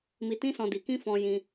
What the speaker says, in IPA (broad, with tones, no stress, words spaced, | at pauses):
mi˧tĩ˦sɔ̃˧ di˧kĩ˦ fɔ̃˧jĩ˧